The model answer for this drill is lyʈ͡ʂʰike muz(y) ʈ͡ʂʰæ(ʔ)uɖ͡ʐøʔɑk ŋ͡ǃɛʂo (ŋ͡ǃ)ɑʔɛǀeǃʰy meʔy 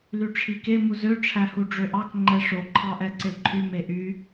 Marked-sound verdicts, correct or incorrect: incorrect, incorrect, incorrect

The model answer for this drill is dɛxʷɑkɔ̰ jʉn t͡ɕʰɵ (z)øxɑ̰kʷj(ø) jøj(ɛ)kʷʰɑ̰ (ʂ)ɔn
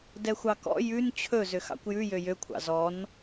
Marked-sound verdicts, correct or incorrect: correct, incorrect, incorrect, incorrect

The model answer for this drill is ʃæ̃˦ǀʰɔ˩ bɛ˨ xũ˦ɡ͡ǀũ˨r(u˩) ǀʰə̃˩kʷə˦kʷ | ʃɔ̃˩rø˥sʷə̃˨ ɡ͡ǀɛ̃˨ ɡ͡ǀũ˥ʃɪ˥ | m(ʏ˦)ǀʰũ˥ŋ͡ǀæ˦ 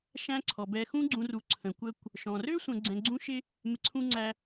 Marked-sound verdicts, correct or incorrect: correct, incorrect

